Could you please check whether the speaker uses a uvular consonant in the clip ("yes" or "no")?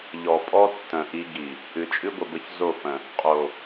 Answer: yes